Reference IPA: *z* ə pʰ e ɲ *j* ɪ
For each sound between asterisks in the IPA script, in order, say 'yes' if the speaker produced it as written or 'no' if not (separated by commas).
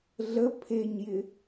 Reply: no, yes